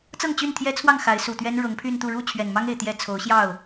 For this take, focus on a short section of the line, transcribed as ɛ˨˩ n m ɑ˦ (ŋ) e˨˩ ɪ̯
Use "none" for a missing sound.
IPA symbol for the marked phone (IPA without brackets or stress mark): ŋ